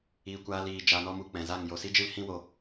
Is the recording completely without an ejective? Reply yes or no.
yes